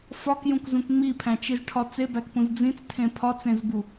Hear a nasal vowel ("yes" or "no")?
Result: yes